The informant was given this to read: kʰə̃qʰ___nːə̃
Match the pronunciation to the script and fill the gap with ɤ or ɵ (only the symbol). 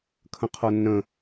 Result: ɤ